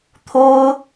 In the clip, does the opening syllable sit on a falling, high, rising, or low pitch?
high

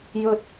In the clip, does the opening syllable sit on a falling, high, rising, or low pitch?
high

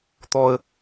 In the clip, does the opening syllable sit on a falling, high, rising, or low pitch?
high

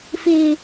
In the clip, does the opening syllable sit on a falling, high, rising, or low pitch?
high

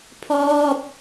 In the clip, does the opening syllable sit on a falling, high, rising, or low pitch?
falling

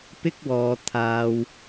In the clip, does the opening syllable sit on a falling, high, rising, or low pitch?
high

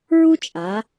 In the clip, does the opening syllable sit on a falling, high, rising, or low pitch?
high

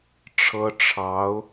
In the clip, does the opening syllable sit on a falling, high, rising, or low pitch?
high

